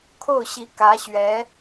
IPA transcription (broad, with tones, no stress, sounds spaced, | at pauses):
kʰ o˥˩ ʊ̯ ɕ i˧˥ k ä˧˥ ɕ ɥ ɛ˧˥